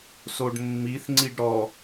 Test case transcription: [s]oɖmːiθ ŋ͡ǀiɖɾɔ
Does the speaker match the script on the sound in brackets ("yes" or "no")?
yes